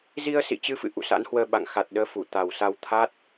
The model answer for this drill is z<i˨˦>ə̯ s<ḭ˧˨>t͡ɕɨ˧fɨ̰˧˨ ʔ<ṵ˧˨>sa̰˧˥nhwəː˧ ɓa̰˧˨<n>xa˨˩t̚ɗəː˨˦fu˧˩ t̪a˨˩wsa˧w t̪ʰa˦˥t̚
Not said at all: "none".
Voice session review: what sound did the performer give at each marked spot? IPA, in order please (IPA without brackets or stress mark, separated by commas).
i˧, ḭ˧˨, ṵ˧˨, ŋ